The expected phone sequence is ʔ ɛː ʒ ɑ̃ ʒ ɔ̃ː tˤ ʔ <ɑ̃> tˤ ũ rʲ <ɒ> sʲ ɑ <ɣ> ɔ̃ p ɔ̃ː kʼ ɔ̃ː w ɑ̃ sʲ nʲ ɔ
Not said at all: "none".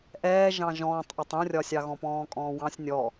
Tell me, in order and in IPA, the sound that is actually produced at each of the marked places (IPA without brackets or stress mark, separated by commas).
ɑ, ɒ, ɣ